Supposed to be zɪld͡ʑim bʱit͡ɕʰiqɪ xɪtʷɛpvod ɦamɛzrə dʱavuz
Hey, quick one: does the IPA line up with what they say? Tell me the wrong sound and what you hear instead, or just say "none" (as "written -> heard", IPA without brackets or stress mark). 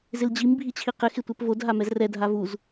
ə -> ɛ